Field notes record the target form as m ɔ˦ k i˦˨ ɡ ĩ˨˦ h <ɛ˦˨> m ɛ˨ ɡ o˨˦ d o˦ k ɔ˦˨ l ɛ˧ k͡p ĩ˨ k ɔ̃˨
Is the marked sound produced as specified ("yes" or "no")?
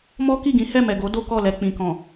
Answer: yes